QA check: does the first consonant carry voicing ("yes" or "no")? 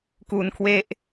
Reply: no